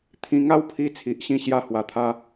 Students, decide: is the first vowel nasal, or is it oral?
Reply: nasal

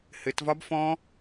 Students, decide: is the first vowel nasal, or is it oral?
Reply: oral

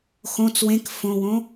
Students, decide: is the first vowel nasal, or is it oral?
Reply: nasal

